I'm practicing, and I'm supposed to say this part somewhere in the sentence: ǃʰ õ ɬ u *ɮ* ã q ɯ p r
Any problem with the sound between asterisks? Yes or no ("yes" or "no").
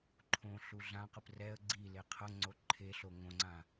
no